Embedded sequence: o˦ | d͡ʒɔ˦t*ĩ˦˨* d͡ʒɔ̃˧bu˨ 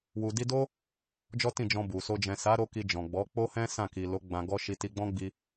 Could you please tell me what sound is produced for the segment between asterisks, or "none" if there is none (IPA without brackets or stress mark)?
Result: ĩ˦˨